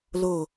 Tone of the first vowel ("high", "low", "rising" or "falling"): low